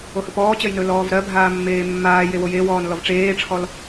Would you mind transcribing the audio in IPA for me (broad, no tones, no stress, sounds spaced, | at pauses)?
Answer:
o h ɵ p ɔː t͡ɕ ɜ j n ɵ l ɔː v ɾ ɜ bʱ aː mː eː mː aː j e w o j e w ɔː n l ɔ v ʈ͡ʂ eː ʈ͡ʂʰ ɔ l